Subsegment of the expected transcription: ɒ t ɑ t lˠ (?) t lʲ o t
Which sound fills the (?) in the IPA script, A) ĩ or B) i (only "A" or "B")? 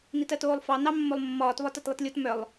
B